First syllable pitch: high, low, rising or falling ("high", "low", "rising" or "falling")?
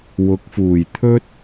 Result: rising